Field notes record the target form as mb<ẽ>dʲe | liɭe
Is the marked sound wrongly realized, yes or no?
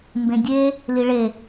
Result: no